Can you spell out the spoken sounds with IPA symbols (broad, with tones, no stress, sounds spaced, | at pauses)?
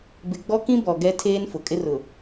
b ɪ˨ ɡ͡b ɔ˦ k ĩ˦ b ɔ˨ ɡ ɛ˦ tʰ eː˦ n f ʊ˨ kʼ ɪ˦ r ʊ˨